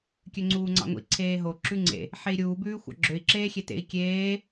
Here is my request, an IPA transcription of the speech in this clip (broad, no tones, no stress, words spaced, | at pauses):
kʲøŋ͡ǀuːŋ͡ǀɑ̰ŋʷḭ ǀʰeːɦo ǁʉŋ͡ǀḛ | ħei̯ɾʲuː bʉːxʷɑ̰ɡ͡ǁøi̯ ǁeːxʲetḛi̯ kʲeː